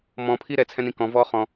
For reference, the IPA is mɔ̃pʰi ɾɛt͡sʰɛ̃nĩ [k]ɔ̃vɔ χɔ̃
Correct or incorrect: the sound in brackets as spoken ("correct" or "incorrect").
correct